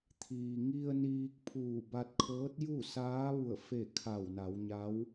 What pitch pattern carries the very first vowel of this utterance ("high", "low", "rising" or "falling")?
low